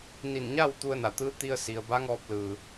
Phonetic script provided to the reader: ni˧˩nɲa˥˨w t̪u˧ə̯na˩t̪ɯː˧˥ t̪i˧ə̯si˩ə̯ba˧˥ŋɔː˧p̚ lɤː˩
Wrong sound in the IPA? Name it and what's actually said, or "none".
ɤː˩ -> ɯː˩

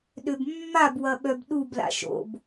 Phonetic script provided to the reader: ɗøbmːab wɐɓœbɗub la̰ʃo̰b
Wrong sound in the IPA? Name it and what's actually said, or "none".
none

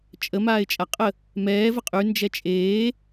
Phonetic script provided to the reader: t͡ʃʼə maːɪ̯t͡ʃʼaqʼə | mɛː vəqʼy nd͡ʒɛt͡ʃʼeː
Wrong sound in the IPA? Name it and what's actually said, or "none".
none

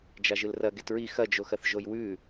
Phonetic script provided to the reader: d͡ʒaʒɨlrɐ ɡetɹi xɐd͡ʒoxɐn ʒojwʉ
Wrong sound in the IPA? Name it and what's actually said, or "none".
n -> θ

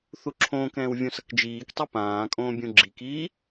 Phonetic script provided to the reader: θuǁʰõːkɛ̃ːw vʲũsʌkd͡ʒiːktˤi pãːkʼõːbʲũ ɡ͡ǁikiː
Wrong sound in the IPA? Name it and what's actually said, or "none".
none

